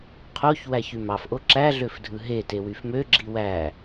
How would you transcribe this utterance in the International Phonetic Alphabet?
qʰoç wæçymɑf ʔoǁæ ɮøfdʱɯɦe tewyfmø ɡ͡ǁiwæ

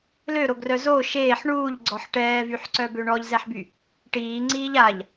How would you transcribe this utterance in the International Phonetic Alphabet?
løɾoɡrœ zo ʃeːħ ɳuːʎɡ͡ǀɔħ ʈɛːvyħǀœbø ɳɔʎzɛħby | ʈiːŋ͡ǀiːʎ aʎ

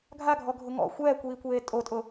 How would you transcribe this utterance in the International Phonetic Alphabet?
ɡʱaɡʱɔɡʱʊ ŋɔ̰ xʷɛːkʷiːkʷeː tʼotʼʊ

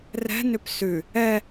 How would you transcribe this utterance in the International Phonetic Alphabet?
rɛ̤nʏp sʉ | ɛ

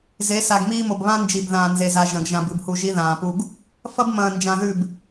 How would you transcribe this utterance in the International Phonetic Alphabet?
ze˨˦sa˨ɡmiː˦mo˨b βã˦nd͡ʒi˨bðãː˨ nze˨za˨ ʒɐ̃˨ɡʒã˨b ɨ˨bhu˨ ʒi˦ðãː˨pu˦ɡ | fɐ˦bmɐ̃ː˨nd͡ʒã˨ ðʉ˦˨b

